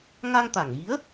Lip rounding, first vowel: unrounded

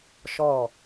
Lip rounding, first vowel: rounded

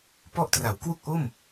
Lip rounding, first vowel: rounded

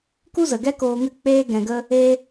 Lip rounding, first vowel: rounded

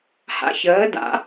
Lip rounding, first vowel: unrounded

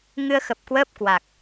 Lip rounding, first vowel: unrounded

